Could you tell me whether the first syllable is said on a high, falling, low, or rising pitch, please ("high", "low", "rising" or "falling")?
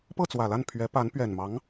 falling